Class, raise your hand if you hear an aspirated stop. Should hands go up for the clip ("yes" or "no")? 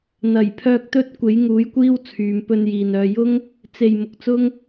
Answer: yes